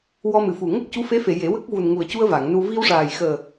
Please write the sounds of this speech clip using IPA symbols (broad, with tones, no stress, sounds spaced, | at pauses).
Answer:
w ɔ˧ m ɨ˨˩˨ f u˨˩ ŋ ə˦˥ k̚ c u˧˥ f e˧˥ f e˨˩˨ j e˨˩˦ w ə˦˥ k̚ v u˨˩ n ŋ u˨˩ ə̯ c u˧ ə̯ v a˨˩˨ ŋ n u˧ v i˧ w ʂ aː˨˩ j x əː˨˩